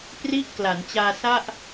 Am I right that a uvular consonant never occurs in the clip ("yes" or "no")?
yes